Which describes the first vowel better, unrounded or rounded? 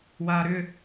unrounded